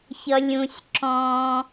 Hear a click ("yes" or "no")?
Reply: yes